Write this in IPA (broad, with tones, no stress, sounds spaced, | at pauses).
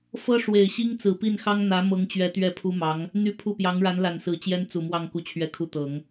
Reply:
f ɤ˥ ʂ w e˨˩ ɪ̯ ɕ i˥ ŋ t͡s ɹ̩˨˩ p i˥˩ n x ɑ˥ ŋ n̪ ä˧˥ m ɤ˧˥ ŋ t͡ɕ ɥ ɛ˧˥ t̪ ɥ ɛ˥˩ pʰ u˥ m ɑ˧˥ ŋ | n̪ y˥˧ pʰ u˥˩ p j ɑ˧˥ ŋ ɻ a˧˥ n l a˨˩ n s ɹ̩˧˥ t͡ɕ j ɛ˥ n t͡s u˨˩ m w ɑ˥˧ ŋ k u˥˧ t͡ɕʰ ɥ ɛ˥˧ kʰ u˥˩ t̪ ɤ˨˩˦ ŋ